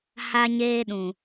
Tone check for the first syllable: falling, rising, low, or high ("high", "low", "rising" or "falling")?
high